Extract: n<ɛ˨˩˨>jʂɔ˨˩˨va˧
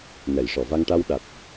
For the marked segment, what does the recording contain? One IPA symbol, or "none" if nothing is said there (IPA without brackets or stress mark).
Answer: ɛ˨˩˨